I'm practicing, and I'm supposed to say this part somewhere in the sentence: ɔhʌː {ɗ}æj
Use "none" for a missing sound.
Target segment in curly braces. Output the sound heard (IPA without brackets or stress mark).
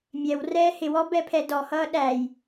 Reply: ɗ